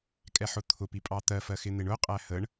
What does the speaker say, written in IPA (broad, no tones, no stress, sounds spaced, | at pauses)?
kʼ ɛ ħ ʊ t̪ʰ ʊ p i pʼ ɑ t̪ ɜ f ɜ x ɪ n̪ ɪ ɳ ʊ qʼ æ h ə ɳ